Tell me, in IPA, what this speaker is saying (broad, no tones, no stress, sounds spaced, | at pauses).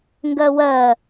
ŋ ɡ ɜ w ɜ